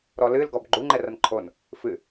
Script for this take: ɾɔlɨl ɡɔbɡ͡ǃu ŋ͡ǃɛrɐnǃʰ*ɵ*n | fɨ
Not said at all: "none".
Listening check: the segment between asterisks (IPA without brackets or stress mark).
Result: o